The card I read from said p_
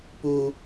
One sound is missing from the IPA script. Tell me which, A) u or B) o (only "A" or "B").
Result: A